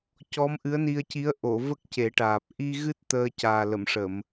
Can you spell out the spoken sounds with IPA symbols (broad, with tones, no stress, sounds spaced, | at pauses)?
c ɔ˧˥ m ʔ ɨ˧˥ ə̯ n i˧ ə̯ c i˧˥ ə̯ ʔ o˨˩˨ v ə˦˥ k̚ c e˨˩˦ ʈ aː˨˩ p̚ ʔ i˧ ɣ ɨ˦˥ t̚ t̪ əː˧ c aː˨˩ l ə˨˩˨ m ʂ ə˨˩˨ m